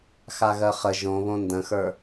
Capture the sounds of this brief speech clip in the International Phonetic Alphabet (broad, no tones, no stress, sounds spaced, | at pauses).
x a ɣ ɜ χ ə ʒ õ β õ n d ə̃ x ə˞